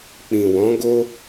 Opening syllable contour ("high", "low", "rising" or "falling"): low